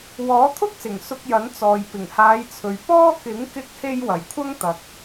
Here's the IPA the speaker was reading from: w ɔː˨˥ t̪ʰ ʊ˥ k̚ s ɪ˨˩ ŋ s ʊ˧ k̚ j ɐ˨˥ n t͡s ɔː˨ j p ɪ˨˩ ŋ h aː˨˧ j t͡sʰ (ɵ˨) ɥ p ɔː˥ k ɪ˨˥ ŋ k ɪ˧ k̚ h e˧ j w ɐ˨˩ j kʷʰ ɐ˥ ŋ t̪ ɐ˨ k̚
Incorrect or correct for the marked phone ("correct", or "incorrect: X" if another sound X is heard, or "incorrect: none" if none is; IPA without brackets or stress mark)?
correct